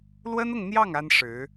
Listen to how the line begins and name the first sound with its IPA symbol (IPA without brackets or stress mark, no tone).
l